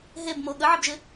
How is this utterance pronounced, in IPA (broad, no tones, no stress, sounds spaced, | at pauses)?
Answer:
ɦ e b m o ɠ ə ʕ ɪ b ʒ ɪ